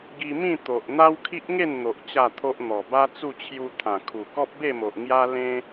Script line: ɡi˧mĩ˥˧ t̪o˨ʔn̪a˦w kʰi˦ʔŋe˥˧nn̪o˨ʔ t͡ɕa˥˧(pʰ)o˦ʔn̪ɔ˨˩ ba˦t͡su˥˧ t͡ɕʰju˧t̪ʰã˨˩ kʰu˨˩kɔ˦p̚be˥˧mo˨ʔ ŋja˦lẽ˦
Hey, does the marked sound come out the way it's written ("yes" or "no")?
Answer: no